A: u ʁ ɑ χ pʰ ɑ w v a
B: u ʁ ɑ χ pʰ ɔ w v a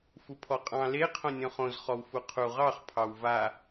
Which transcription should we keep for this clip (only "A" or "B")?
A